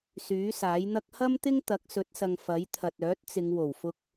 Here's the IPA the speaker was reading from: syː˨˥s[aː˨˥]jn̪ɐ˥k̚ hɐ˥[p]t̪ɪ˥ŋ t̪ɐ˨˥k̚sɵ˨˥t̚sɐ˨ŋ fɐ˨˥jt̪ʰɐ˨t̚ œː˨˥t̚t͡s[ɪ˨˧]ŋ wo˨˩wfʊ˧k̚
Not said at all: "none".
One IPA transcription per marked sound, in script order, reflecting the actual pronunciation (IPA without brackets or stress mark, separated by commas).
aː˨˥, m, ɪ˨˧